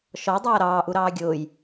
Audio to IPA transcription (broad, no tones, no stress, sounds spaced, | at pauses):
ʃ ɔ dˤ ʌː ɾ ɑː ʔ u ɾ ɑː ɡʲ ʊː j